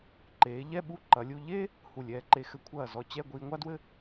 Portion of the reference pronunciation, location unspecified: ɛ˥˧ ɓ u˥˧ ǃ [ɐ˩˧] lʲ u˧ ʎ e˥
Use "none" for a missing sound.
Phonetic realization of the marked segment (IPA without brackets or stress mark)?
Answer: ɐ˩˧